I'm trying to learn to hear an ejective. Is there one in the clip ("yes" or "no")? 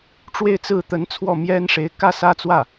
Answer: no